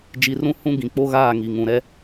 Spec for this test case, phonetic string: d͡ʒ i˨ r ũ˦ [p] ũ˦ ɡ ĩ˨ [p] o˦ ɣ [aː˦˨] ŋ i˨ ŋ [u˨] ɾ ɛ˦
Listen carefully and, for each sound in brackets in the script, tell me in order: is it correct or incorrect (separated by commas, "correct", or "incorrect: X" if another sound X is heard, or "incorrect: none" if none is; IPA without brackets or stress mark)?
incorrect: h, incorrect: k͡p, correct, incorrect: ũ˨